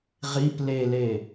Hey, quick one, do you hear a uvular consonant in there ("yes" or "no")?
yes